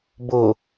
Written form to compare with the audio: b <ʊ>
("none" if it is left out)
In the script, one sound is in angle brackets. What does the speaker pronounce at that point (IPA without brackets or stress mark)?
ʊ